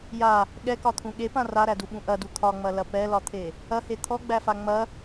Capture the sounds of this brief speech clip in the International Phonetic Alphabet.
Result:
j a | ɠ ɛ k ɒ t̪ʰ ũ ɠ e p ã r a ɾ æ d u ɓ ũ ʔ ɐ d u t̪ʰ ɒ ŋ͡m ɐ l ɐ p ɛ l ɒ t̪ʰ e | ɐ h e t̪ʰ ɔ ɡ͡b æ f a ŋ͡m ɐ

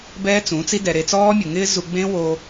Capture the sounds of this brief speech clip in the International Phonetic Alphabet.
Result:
b ɛː˦ t͡s ũ˨˦ t͡s i˦ d ɛ˨ ɾ e˧ t͡s ɔː˦ mʲ ʊ˨ ŋ ɪː˦ z u˧ ɡ͡b ẽ˦ w o˧

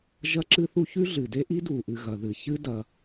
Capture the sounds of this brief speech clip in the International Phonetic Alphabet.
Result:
ʒ ɐ˥ ǁ ɨ˥ θ u˥ ç ʉ˥ ɮ ɨ˩ d e˥ ʔ i˥ d u˩ ʔ ɨ˩ ɣ ɐ˩ ð ɨ˩ ç ɨ˥ d ɐ˩

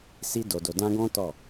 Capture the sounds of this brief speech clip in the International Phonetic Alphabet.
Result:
s i˧ d o˨ d o˨ d ã˧ ɡ ɔ̃˦ t ɔ˦˨

